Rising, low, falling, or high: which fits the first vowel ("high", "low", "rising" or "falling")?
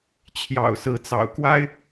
low